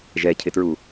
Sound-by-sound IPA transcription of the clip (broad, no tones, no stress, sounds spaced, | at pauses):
ʒ ɛ cʰ ɪ t ɹ u